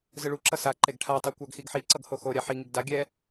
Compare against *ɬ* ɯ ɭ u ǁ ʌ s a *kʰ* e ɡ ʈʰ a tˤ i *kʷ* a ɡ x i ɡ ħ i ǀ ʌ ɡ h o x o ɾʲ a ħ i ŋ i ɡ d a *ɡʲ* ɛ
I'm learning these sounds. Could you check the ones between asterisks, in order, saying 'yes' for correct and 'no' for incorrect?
no, no, yes, yes

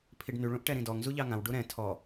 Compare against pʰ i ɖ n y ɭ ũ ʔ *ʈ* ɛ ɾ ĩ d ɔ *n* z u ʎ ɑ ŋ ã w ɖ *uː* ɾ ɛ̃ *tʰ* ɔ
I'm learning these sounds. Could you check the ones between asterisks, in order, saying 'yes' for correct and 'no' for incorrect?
yes, no, no, yes

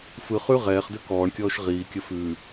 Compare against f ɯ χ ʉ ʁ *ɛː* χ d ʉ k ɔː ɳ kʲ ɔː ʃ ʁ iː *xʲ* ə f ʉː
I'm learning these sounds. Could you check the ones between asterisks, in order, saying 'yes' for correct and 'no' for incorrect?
yes, no

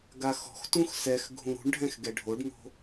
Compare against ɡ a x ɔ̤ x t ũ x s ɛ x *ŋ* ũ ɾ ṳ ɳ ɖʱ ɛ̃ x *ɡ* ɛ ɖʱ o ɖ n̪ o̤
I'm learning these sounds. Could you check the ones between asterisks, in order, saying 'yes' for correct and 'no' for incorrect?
no, yes

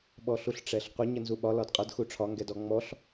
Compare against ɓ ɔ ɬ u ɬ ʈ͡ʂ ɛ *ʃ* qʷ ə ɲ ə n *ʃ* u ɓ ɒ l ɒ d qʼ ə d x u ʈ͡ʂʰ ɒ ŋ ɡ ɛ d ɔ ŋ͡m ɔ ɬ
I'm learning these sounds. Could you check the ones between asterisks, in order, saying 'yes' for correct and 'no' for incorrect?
no, no

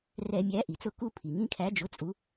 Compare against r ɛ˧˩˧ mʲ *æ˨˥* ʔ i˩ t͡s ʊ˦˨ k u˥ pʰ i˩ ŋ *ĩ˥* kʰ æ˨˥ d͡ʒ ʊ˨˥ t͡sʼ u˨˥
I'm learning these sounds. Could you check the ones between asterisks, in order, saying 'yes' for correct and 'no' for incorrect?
yes, yes

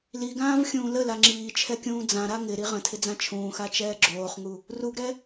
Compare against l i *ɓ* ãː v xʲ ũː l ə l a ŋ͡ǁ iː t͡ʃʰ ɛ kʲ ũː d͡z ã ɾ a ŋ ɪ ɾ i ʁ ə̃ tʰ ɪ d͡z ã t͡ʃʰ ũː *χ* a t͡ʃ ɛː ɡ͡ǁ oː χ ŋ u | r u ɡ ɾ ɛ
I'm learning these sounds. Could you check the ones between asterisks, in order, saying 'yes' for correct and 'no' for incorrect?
no, no

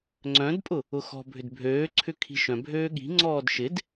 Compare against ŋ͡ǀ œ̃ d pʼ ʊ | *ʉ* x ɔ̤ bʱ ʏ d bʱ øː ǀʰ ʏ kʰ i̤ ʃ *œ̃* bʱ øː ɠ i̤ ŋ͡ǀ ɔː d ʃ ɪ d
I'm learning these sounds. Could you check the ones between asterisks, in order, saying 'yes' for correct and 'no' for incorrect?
no, yes

